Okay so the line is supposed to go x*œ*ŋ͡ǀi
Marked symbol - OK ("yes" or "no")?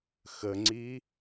no